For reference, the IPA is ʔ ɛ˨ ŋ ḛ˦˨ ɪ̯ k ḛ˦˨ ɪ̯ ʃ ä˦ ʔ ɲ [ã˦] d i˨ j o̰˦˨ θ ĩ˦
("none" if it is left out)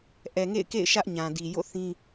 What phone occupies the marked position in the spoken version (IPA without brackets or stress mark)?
ã˨